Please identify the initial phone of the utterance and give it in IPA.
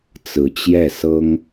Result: t͡s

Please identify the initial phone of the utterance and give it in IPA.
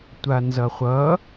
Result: tʷ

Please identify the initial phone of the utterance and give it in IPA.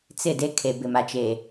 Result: t͡s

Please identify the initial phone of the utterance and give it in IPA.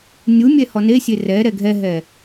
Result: nʲ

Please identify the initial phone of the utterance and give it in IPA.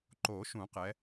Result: ǃ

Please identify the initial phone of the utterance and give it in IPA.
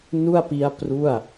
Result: n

